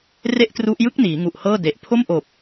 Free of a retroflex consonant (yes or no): yes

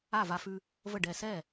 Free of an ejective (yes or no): yes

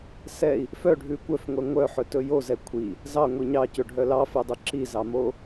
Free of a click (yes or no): no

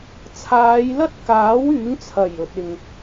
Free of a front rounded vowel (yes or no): no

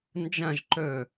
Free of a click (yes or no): no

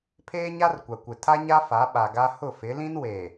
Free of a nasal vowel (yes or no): no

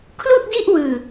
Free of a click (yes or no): yes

